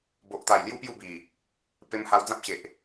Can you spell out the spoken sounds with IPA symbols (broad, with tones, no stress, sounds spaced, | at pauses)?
b o˨ ʔ t̪ a˨˩ j l j u˦ p j u˥˧ b i˨˩ | p e˧ m h a˧ w d͡z ã˦ p̚ ɕ e˨ ʔ